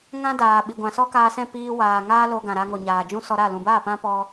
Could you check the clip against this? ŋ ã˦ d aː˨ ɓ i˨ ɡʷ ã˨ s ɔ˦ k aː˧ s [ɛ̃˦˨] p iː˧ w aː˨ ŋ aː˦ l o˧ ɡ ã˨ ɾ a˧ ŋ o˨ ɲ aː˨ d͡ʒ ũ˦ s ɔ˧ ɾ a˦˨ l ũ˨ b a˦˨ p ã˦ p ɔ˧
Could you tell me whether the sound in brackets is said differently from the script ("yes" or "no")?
no